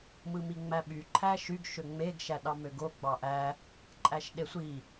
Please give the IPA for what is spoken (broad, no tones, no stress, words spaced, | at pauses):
mɯmiŋ͡mæɓy ǃʰæʃyɡ ʃøŋ͡meɡ ʃæɗɑmøɡo ɡ͡bɑʔæ | ǃʼæʃɗesʷi